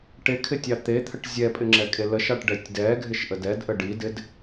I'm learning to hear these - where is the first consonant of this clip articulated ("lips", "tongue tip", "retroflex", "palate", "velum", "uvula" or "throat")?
retroflex